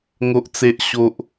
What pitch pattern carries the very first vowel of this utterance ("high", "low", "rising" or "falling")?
high